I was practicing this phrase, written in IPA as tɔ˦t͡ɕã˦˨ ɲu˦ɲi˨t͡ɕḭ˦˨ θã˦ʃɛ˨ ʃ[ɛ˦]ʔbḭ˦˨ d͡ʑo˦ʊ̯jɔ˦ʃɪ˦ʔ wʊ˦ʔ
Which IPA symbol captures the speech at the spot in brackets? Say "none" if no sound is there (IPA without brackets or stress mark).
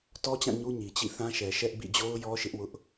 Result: ɛ˦